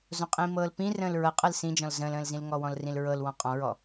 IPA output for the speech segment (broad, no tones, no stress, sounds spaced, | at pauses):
z õ qʼ ĩː m ɤː l p ĩ r ə̃ː l ɹ ɤ qʼ ɤ l s ĩ d͡ʒ ɔ̃ l z ə̃ː l ə̃ː l z ĩ l ŋ ɔ w ɔ̃ l r ĩ l ɹ ɤ l w ɔ̃ qʼ ɔ̃ ɹ ɔ